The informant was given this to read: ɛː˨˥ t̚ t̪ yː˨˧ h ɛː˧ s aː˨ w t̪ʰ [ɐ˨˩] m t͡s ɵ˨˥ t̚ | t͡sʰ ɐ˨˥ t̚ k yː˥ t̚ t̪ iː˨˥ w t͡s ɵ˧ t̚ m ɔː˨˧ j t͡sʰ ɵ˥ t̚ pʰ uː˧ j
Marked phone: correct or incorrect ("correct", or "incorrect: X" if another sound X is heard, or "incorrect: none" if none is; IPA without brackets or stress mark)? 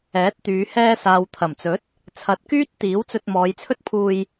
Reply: correct